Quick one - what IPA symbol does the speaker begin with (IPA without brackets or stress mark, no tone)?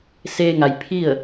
s